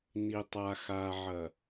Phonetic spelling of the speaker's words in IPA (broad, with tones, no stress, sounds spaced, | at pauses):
n i˨ tˤ a˨ x aː˨ ʕ ɐ˨